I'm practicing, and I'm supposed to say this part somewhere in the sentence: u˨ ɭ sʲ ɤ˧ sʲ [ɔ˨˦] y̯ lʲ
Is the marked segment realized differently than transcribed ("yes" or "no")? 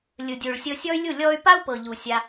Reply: yes